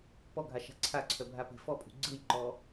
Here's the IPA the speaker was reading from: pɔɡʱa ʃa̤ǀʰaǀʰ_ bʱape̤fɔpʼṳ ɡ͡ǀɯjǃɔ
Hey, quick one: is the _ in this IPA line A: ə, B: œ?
B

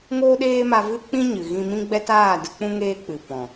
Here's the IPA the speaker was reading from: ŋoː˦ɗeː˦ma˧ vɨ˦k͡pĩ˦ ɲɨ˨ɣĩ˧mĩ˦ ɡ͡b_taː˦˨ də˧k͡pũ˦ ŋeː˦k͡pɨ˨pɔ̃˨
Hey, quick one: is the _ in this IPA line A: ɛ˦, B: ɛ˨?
A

